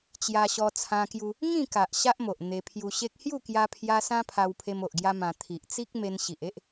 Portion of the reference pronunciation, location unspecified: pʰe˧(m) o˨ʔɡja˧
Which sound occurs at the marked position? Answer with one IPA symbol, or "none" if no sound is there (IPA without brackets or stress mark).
m